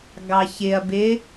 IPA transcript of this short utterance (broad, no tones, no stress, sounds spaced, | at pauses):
ɡ ɑ ç ɪ ɐ̯ b ɪ